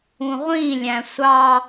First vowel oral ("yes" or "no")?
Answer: no